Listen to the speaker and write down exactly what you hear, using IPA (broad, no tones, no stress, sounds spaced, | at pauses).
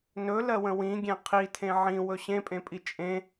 n ɵ l ɜ w ə̃ w ĩ ɡʲ ẽ qʰ i tʰ ẽ ʕ ĩ w ɵ ɕ ẽ pʼ ẽ pʼ i t͡ʃʼ ẽ